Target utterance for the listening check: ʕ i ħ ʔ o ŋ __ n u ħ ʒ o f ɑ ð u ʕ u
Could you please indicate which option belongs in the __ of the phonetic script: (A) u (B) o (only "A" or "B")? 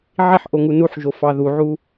A